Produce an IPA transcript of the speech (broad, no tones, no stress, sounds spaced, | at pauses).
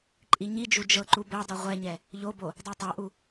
ǃʼ i ɲ i d͡ʒ u d͡ʒ ɤ ǃ u b ɛ dˤ u ʁʷ ɛ ɲ ɛ | ʎ o b o | dˤ a tˤ a ʔ u